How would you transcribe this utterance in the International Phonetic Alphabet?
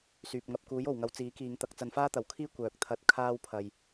syː˨p̚ŋɐ˧p̚ kuː˨˥jo˨˩wŋɐ˨˧w t͡siː˨˥kiː˨˧ŋt̪ɐ˧k̚ t͡sɐ˨˧nfaː˥t̪ɐ˨˩wkʰiː˥ kʷœː˨k̚t̪ʰɐ˧t̚ kʰaː˥wpʰɐ˨j

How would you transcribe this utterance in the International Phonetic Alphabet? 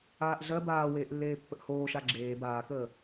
aːʔɮɜ baːweːʔlːeːpːəʔ hoːʃa ɡ͡ǁeː baːkəː

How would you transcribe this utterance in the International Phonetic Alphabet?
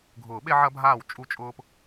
ɡʱʊː˨˩˦ɓe˦ʕɐ˦ bʱaː˥˩wt͡ʃʼu˦t͡ʃʼʊː˦p

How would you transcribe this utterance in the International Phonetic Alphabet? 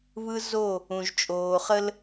βɯ˦zo˦˨ | ũ˨ʒt͡ʃʼoː˨χə˦l

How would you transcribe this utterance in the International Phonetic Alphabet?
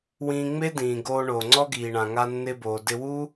wĩː˧ ŋ͡me˥dĩː˩ ɡoː˧ɳoː˩ ŋ͡ǀɔ˥ɡiː˩ɳã˩ ŋa˧ nːɪː˧boː˩dɪ˧wuː˥

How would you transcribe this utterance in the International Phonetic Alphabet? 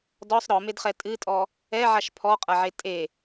dɔsˤ ɾɔmedχɛ tʼɨtʼɔ | ɛʕaʃ pʰɔqʼɐʕe tʼe

